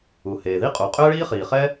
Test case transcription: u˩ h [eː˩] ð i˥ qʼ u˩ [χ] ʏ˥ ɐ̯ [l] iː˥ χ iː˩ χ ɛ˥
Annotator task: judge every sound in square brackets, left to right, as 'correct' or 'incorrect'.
correct, incorrect: qʼ, incorrect: ɭ

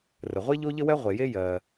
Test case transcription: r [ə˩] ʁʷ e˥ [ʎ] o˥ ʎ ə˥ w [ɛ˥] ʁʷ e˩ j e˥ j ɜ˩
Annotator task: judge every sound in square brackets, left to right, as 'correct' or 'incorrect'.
correct, correct, correct

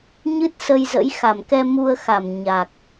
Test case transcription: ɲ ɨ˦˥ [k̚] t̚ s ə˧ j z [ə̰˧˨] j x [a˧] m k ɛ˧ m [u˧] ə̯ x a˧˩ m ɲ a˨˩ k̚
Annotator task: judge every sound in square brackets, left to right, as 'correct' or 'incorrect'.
incorrect: none, incorrect: ə̰˧˥, incorrect: a˧˩, correct

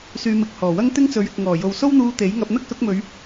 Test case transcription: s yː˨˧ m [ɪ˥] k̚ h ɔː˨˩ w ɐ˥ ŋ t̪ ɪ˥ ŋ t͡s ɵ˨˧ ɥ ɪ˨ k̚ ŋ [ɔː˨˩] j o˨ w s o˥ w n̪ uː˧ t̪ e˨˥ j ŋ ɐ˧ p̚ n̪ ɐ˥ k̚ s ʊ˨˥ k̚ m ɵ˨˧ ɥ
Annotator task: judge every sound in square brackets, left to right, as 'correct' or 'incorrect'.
incorrect: ɪ˨, correct

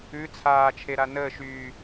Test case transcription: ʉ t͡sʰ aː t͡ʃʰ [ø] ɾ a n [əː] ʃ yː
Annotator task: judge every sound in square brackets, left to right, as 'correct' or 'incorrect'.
incorrect: e, correct

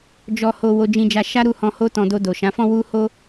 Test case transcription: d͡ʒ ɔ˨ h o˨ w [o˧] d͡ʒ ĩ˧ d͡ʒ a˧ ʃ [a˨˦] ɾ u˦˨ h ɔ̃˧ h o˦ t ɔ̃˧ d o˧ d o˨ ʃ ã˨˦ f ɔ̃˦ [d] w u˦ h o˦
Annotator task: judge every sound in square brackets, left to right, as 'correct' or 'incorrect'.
correct, incorrect: a˦, incorrect: none

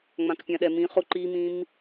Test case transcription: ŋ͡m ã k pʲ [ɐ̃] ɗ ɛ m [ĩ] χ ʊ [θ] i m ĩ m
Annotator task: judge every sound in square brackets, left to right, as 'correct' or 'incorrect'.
incorrect: ã, correct, incorrect: ǃ

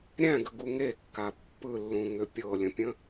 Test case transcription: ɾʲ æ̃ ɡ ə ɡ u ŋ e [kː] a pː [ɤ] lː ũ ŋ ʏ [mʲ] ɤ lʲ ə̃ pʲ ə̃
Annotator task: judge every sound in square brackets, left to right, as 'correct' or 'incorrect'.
correct, incorrect: ɯ, incorrect: pʲ

